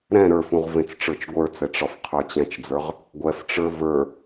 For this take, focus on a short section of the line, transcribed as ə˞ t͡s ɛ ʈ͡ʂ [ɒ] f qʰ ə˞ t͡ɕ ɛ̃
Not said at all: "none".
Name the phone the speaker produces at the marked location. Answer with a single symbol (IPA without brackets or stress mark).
ɒ